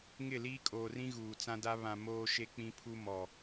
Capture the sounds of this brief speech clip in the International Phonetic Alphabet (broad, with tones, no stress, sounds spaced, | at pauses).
ŋ ɪ˦˨ l iː˦ kʼ oː˨ r ĩ˦ ɣ uː˨ t͡s ã˦ d a˦ β ã˨ m oː˦ ʃ e˦ k͡p ĩ˦ pʰ u˦ m ɔ˨